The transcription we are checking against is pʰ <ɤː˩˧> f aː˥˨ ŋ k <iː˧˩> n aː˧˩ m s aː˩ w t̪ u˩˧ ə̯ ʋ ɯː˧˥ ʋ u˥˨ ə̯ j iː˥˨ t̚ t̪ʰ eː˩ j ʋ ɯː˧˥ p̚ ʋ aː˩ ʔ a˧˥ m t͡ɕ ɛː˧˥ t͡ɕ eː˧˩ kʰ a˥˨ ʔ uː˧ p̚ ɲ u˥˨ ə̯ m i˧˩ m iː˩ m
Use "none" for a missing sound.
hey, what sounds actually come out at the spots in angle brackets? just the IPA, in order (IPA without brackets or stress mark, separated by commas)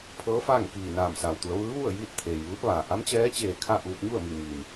ɤː˧˥, iː˧˩